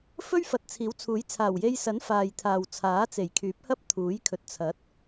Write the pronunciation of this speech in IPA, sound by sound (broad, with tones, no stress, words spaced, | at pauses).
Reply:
fɵ˥ɥfɐ˨˥t̚ t͡sʰiː˨˥wt͡sʰuː˨˥j t͡sʰaː˨˩wje˧j sɐ˨˥n faː˨jt̪ʰaː˨w t͡sʰaː˨˥t͡se˨˩jkʰyː˨˥p̚hɐ˥p̚ t̪ʰuː˨˥jkʰɵ˨t̚t͡sʰɐ˨˥t̚